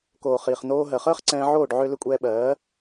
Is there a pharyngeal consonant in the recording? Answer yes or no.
yes